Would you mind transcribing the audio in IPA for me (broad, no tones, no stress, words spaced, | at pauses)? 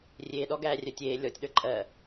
rʲeːɗɔ ɡæːrʲœtʲeː lʲɔːtʲɗə˞ǃʼɜ